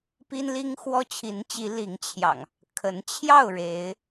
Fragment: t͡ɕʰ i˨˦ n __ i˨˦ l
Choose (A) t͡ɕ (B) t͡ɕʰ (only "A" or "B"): A